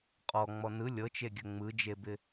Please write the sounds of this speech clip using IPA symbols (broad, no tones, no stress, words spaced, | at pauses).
qʼɔŋ͡mɔ nɯ lʲɤt͡ʃeɡʲə ŋ͡mɯd͡ʒebɪ